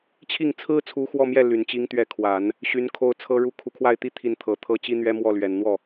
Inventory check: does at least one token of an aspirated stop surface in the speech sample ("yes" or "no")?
yes